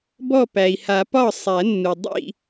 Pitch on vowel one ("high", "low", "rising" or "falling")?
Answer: falling